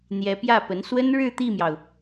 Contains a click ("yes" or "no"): no